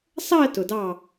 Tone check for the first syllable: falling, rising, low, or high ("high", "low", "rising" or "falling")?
falling